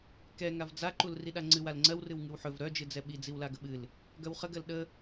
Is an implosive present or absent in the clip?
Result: present